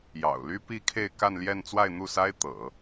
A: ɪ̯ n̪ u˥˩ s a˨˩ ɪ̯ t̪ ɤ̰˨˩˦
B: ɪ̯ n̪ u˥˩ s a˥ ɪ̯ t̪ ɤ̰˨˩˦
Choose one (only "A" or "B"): B